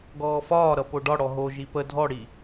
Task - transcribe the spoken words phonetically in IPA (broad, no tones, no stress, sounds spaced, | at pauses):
ɡ ɔː f ɒː ɾ ʌ p o ɖ ɒ ɽ ɔ ɦ o ʒ i p ə dʱ ɔ ɽ i